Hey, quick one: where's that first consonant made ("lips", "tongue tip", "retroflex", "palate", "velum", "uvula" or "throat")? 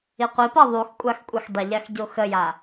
uvula